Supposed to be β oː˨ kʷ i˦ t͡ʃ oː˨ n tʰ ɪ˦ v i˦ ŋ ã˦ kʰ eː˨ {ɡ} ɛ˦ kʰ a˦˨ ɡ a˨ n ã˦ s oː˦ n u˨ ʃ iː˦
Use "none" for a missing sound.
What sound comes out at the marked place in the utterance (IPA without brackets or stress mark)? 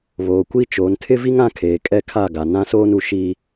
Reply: kʼ